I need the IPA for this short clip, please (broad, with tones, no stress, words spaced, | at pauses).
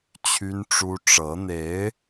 t͡ɕʰy˥n ʈ͡ʂu˥ ʈ͡ʂɤ˧˥n̪e˧˥ɪ̯